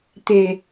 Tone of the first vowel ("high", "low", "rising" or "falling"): low